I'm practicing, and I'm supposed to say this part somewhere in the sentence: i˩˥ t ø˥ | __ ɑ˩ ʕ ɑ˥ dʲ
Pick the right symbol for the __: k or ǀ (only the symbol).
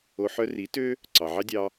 ǀ